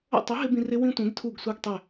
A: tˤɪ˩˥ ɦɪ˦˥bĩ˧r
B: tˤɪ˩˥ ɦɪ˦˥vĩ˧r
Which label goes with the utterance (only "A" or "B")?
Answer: A